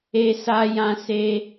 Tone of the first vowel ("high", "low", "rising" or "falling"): high